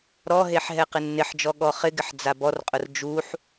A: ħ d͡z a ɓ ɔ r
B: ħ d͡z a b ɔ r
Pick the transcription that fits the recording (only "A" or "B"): B